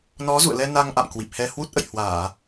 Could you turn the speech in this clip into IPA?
nɔ˨˦zṵ˧˨ə̯lɛ˧ na˧ŋʔa̰˧˨m kwi˨˩p̚hɛ˧hwu˦˥t̚ ʔə̰˧˨jhwaː˧˩˨

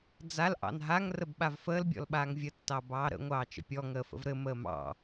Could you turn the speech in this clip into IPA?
d͡zal ʔɑ̰nɦaŋ rəbɓavfəːl bʲɔ̰lɓaːŋvʲə tːɑbɑːɾə̰ ŋʷɑːt͡ʃə̰pʲɔ ŋəːfə̰vɾɘ məːmɑ̰

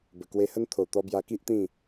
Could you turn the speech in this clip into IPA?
bə˨˩kwe˧hə˦n t̪ʰo˨˩ t̪ɔ˧bja˧ki˦ʔt̪ĩ˥˧

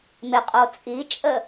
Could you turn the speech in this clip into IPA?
mɪqʼo t͡sʼit͡ʃʼə

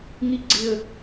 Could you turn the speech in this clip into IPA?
ŋi ɡ͡ǀɪə̯

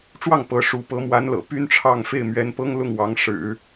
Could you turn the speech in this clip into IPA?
ʈ͡ʂwɑ˥˩ŋ pɤ˧˥ ʂu˧˥ pɤ˧˥mwa˧˥nlɤ̰˨˩ py˥nʈ͡ʂʰɑ˥˧ŋ fe˥˩ɪ̯mɥɛ˧˥npɤ˥ŋ lʊ˥˩ŋwɑ˧˥ŋ ʂɻ̩˨˩˦

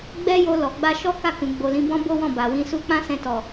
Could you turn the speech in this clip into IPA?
ɡ͡bɛ˦jo˧ lɔ˨ɡ͡ba˧ ʃɔ˦ka˦˨kũ˨ ɡ͡bo˨lĩ˨˦bɔ̃˦ bo˦wɔ̃˦˨ ba˨wĩ˧su˦ k͡pã˦sɛ̃˧tɔ˨

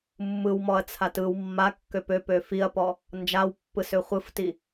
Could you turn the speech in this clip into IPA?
mːɯwmɔɐ̯t͡sʰat ɯw mːakːøp øpø fiɐ̯pɔ | nd͡ʒawpːɯsø χʷɯfti

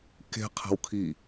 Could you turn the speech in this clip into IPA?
ke̤ qʰɛ̤wkʰi

